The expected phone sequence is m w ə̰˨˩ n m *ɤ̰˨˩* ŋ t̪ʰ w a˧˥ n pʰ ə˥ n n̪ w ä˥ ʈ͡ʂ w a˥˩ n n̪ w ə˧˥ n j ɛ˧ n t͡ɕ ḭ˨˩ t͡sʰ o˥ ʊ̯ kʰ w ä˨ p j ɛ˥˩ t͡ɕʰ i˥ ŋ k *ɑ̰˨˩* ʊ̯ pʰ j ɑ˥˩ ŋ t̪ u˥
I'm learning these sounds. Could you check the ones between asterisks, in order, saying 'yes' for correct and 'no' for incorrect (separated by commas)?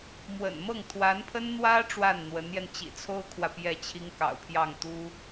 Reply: no, yes